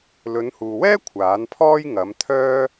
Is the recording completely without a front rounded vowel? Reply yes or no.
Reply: no